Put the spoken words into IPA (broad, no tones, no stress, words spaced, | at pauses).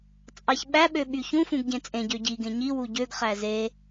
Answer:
t͡sʼɑçɓæ ɓøɓyçũ fũɡɟẽt͡sʼẽ ɟøɟi ɡẽɲi wuɟøɡ χæze